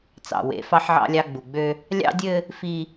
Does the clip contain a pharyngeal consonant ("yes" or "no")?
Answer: yes